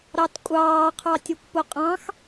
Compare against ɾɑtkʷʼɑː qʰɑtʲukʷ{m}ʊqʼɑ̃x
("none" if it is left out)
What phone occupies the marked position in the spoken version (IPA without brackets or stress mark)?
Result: p